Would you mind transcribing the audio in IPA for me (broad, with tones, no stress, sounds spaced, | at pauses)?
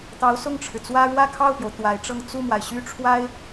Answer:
t̪ ɑ˧˥ ʊ̯ s ʊ˥˩ ŋ ʈ͡ʂʰ ɻ̩˩ t͡s w ä˥ ɻ w ä˥˧ kʰ ɑ˥˩ ʊ̯ p j o˩ ʊ̯ t̪ w a˧˥ ɪ̯ ʈ͡ʂ ɤ˥˧ ŋ t͡s u˥˩ m w a˩ ɪ̯ ɕ y˥ ʈ͡ʂʰ w a˥ ɪ̯